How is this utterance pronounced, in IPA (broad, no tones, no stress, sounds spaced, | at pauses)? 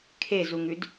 kʰ e z u ŋ ʉ d